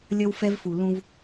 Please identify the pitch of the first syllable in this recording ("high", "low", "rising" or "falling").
high